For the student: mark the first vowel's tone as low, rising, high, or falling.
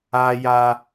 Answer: high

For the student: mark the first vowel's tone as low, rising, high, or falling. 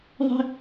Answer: high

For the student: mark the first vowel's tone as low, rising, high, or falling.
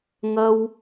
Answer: high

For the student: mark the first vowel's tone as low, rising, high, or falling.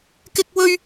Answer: high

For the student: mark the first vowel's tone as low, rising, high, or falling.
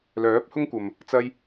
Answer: rising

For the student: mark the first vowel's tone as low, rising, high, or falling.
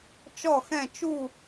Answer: falling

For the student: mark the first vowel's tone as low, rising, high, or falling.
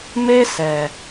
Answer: high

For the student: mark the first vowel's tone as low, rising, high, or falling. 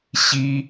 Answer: low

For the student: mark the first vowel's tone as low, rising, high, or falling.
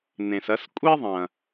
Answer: low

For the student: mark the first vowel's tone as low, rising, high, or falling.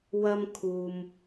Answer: high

